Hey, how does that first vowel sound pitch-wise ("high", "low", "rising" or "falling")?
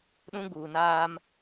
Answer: high